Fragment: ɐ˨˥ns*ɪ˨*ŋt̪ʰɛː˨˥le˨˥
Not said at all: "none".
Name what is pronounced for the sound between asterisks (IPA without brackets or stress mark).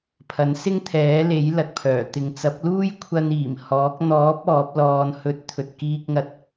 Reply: ɪ˥